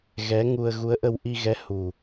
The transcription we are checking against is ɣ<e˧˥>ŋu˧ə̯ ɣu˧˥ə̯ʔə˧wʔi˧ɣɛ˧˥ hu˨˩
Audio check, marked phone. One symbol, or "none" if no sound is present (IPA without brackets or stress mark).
ɛ˧˥